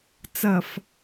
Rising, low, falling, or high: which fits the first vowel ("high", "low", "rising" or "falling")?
low